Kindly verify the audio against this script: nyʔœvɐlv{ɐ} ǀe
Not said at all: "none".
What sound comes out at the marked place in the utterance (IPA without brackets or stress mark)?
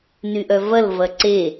ɐ